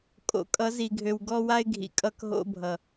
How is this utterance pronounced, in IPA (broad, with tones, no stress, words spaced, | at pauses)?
kʼo̰˨kʼʌ˨˦zi˨ɡʱø˨w ɡɔ˦wa˦ɪ̯ɡʱḭ˨ kʼʌ˦kɦo̰˦ bʱʌ˨